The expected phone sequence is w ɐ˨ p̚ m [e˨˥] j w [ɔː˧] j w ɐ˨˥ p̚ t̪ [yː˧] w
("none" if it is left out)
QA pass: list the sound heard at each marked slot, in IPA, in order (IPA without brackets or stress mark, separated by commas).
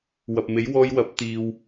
e˨˥, ɔː˧, iː˧